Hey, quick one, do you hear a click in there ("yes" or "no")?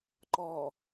yes